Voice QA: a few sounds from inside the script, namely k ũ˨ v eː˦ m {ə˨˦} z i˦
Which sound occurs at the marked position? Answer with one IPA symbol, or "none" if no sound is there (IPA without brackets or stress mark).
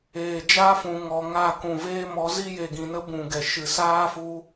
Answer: ɔ˨˦